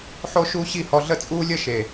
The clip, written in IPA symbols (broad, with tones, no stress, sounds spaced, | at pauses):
ħ o˦ ʃ uː˦ ɕ i˦˨ h ɔ˧ ɮ ə˦˨ t͡sʼ uː˦ lʲ ə˦ ʃ e˨